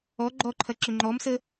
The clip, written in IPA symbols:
ɔ ɡ͡ǃɔǃʰɐ ǁʏŋ͡ǃɔmsə

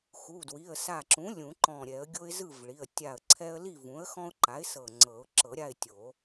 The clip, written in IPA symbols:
xu˩˧˩dwi˩˧˩ə̯sa˧˩ǁũ˩˥ lʲũ˨˩˦ǃɔ̃˧˩ɾʲɛ˨˩˦ə̯ ɡʲo˦ɪ̯zɯ˥˨vɭi˩˧˩ə̯ tʲa˧˩ə̯ǀʰɛ˦ə̯li˥˨ vũ˩˥ə̯xɔ̃˦ʊ̯ǃa˩˥ɪ̯ sɤ˧˩ŋ͡ǀɤ˨˩˦ʊ̯ ǁɤ˨˩˦ɾʲa˥˨ɪ̯tʲo˨˩˦

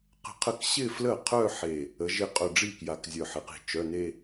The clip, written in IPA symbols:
qə̤˧˩qʰə˥˩k ɕɪ˥˧flə˥˩qʰœ˥˧ ħe˧˩ | ə˩˧ʒɪ˧˩ qʼœ˧˩ɖ͡ʐi˥˩ kja˧˩kzʲœ˧˩ħɪ˩˧˩qi̤˧˩ t͡ʃœ˩˧˩ne˥˧

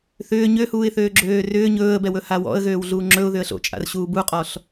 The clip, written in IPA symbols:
θʏː ɲøhuːɪ̯θøː ɡ͡ǁøːrʏː ɲɵːə̯bɛwɵ hawɔ̰ə̯ɣøːwɮuː ŋ͡ǁɵʊ̯ ðʏə̯ɬo̰t͡ʃʼa̰r ɕuːbuqʼɔɬ

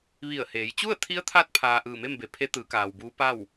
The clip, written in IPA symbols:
ʋi˧˩ə̯heː˩˧j t͡ɕu˥˨ə̯t̪ʰi˧˥ə̯t̪ʰa˧˥t̚ pʰaː˧ ʔɯː˧˩me˥˨mbe˩˧pʰe˧˥ t̪ɯː˩˧kaː˩wbuː˧˥ pa˥˨w

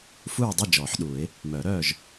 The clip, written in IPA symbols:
fu˥˨ɹdˤø˥˨ d͡ʒɔː˨˩˦ħɗu˨˩˦ɪ̯ | mœː˨˩˦ɾœː˥˨ʒ

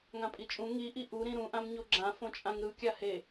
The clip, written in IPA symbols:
ŋãpʼit͡ʃʼũ ŋiʔi ʔuɾĩ ɾũʔãm ɲoɡ͡ǁã fõt͡ʃʼãŋɾɯ kʲahe

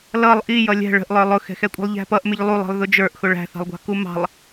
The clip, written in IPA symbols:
lʌlˠ ʔi jʌlʲɛ̤ ɭə̤ʔlˠə˞ lˠʊxɛ̤xɛkʷʼə̤lˠ ʎæ̤pʌʔ mɪʎlˠulˠi̤lˠ ðʊd͡ʒə˞ʔ xʊɭæ̤θɑ̤lˠɡʷɑ̤ kumɑ̤lˠ

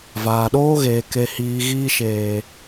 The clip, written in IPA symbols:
vaː˨ɗoː˦ɣeː˨ ke˨hiː˨ ɣiː˧ʃeː˨

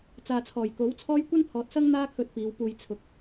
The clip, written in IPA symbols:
t͡saː˨t͡sʰɔː˨˩jko˨˥wt͡sʰɔː˥j kʷɐ˥nt̪ʰɔː˨t̚sɐ˥ŋ n̪aː˥kʰɵ˧t̚ piː˨˧wpuː˧j t͡sʰʊ˨˥k̚

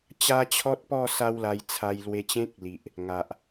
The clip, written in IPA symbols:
t͡ɕa˦t͡ɕʰɔ˦t̚pɔ˥˧ sa˦wla˧jt͡sʰa˧j lwe˧t͡ɕẽ˦k̚li˨ʔ | ŋa˨ʔ

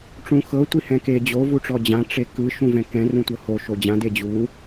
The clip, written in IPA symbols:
ʈ͡ʂũxɤ tʷihɛ̃ke d͡ʑo vuʈ͡ʂɔd͡ʑã ʈ͡ʂekɯ ʃũvɛ̃kɛ̃ rũtʷɤho ʃod͡ʑã ded͡ʑu

